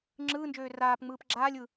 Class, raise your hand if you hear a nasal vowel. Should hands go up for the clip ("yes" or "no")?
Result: no